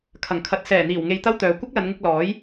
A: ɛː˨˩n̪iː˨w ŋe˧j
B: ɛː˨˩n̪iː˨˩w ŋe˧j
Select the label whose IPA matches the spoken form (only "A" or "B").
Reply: B